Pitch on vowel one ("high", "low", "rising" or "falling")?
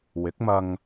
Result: rising